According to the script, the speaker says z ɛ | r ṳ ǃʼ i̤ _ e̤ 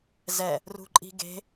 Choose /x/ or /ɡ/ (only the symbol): ɡ